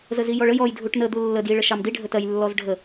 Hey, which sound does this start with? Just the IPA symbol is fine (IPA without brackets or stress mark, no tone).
z